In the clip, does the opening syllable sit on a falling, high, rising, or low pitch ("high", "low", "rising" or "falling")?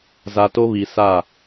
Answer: low